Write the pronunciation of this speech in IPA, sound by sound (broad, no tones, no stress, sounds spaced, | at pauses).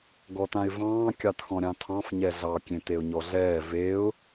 ɡ ɔ t ã ɪ̯ v ɑ̃ː kʲ ɑ t x ɔ̃ ɾʲ ɑ̃ tʰ ɑ̃ f ɲ ɛ ɮ ɑ kʲ ẽ t e ʊ̯ ɲ ɔ ɮ ɛː v e ʊ̯